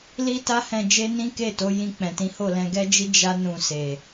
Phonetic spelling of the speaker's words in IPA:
li˦ta˦hɛ̃˧d͡ʒe˦ nĩ˦ke˦˨to˨˦ jĩ˧k͡pɛ̃˨tĩ˨˦ ho˦˨lɛ̃˧ɡɛ˦d͡ʒi˦ d͡ʒa˦ nũ˧se˨

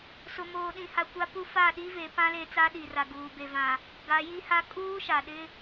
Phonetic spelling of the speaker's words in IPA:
sʊ˨moː˨ɗĩ˨ha˨ kʷa˦pu˦ fa˦˨ɗi˦ ve˨˦pã˦ le˦ t͡sa˦ɗi˨ra˨ ɡuː˨be˨vã˨ | ɡa˨˦ji˦ha˦ kʼuː˦ʃa˨ɗɪ˦

